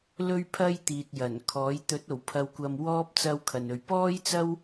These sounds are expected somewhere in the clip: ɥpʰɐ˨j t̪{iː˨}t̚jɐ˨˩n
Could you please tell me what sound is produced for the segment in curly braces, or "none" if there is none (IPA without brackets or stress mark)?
iː˨